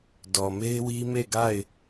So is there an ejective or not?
no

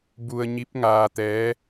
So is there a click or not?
no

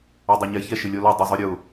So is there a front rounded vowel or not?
yes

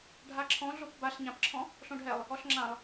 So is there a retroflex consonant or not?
yes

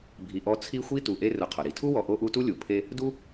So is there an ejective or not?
no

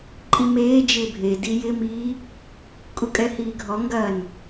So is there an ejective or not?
yes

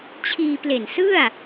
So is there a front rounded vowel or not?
no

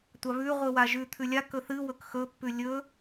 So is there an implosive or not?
no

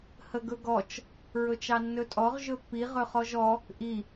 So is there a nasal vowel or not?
no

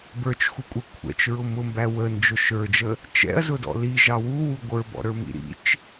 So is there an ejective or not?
yes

